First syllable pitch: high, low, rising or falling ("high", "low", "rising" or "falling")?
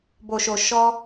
low